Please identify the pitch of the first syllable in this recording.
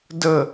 falling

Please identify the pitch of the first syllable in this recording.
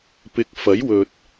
rising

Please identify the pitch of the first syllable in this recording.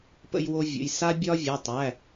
high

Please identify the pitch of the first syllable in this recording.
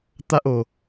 high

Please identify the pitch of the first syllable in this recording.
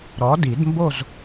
rising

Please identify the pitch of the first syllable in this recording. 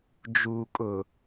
low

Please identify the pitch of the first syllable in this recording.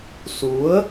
rising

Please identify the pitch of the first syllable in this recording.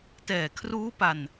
low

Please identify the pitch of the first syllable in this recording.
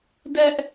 high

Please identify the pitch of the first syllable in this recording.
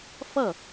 falling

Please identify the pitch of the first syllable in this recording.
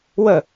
falling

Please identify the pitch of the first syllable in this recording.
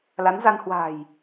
rising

